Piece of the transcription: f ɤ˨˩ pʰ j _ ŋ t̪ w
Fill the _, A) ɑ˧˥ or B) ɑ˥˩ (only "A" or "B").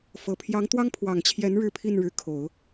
A